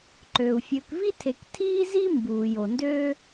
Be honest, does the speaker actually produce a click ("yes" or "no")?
yes